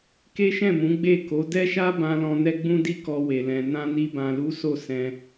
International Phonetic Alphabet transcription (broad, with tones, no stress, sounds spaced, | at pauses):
k e˦ ʃ ɛ̃˦˨ m ũ˨˦ ɡ͡b e˦˨ k o˨˦ d ɛ˦ ʃ a˦ b ã˧ l ɔ̃˧ n ɛ˦ ɡ͡b ũ˦ d i˦ k ɔ˧ w e˨ l ɛ̃˨ n ã˧ n i˧ b ã˨ l u˨˦ s o˦˨ s ɛ̃˧